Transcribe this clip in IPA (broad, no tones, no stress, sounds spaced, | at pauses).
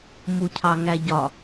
m u cʰ ɑ ŋ æ ɟ ɒ